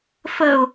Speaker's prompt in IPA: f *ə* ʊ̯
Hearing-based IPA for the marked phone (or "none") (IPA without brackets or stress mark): ə